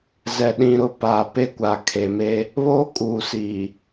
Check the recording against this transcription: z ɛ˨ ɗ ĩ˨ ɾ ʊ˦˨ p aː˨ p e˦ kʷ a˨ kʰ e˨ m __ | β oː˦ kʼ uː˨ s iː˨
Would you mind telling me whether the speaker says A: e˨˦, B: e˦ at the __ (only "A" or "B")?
B